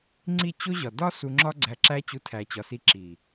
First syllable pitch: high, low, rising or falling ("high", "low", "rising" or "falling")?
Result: falling